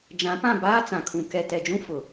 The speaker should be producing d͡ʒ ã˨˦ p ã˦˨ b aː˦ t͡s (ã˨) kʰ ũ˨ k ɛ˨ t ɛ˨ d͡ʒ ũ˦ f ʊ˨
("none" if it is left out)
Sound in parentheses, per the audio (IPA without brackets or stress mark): ã˨